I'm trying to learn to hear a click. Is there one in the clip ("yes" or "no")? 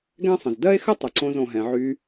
yes